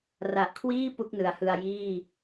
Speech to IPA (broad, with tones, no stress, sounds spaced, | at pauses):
r a˨˩ ʔ kʰ w iː˥˩ p u˥˩ k̚ n ɯ˩˦ a̯ h ɯ˧ a̯ j iː˥˩